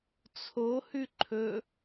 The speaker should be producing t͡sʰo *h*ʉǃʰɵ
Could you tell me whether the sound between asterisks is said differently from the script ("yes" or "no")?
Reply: no